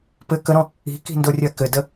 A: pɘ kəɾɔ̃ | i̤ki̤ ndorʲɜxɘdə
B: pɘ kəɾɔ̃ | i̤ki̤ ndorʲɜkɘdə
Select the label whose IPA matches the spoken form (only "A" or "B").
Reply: B